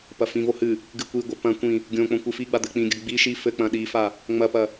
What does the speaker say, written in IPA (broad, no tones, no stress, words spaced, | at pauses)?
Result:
pɐfĩvo hɨ | ɡɨkʷiɡʷɘ pɐ̃ kʷĩ | ɡʲõk͡põ kʷɨfiɡ͡ba d̪ɘk͡pĩɡʲɐ ɡ͡bi ʃi fɘk͡pɐ̃ ɗifa | ŋ͡mɐpɐ